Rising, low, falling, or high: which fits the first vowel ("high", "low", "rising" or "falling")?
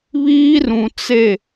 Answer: high